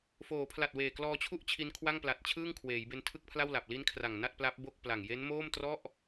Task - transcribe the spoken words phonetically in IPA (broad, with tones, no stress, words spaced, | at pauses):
foː˩˦pʰla˨˩t̚ weː˨˩ klɔː˧t͡ɕʰu˥˩ʔt͡ɕʰi˧n kʰwa˥˩ŋpla˨˩t̚t͡ɕʰɯː˥˩ŋkʰweː˩˦j be˧ntʰɯ˥˩k̚pʰla˥˩wla˨˩p̚ li˦˥n kʰra˨˩ŋna˥˩t̚pla˦˥p̚ bo˥˩k̚pla˨˩ŋ je˦˥nmoː˥˩mtrɔ˥˩ʔ